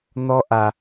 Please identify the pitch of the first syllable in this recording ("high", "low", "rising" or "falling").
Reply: high